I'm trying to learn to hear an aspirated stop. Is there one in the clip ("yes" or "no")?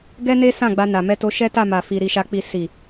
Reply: no